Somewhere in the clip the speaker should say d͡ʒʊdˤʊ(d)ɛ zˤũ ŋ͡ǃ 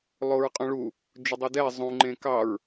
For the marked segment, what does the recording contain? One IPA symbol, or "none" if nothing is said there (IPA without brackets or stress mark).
d